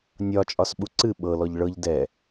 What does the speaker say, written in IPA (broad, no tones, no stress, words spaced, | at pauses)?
nʲɒt͡ʃʼɒsɓu ǀɨ ɓɤlɔʎ ɭɤʎ dɛ